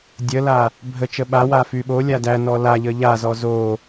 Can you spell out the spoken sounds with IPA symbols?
dʲəla | bʱət͡ʃə ɓawa fyɓolʲa dænɔ laʎə ʎazɔ zo

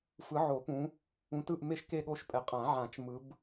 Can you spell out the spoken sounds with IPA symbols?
fɯ˨˦ʕo˨˩˦pũ˨˦ | ũ˨˦tɯ˥˨ʔ me˥˨ʃ ke˥˨ɠo˥˨ʃpʼɛ˨˩˦ qʼã˨˩˦ʕã˨˩˦t͡ʃ mɯ˨˦b

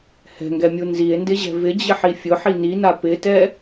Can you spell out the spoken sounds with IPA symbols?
hɛ̤ŋɡɛmʲu nzie̯ndɪʑɛ̤ vɪd͡ʑɪħi fʲʊħi nina pɪtɛ

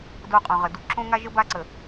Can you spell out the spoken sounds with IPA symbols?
do˦˨qʼõ˨ʁə˨du˦ ǁõ˦ ŋa˦ʒə˦ ba˦ǀə˨

